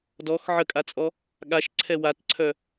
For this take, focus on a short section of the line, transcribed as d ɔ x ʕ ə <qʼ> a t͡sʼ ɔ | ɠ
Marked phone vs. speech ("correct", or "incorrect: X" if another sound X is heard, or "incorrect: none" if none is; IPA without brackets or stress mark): incorrect: kʼ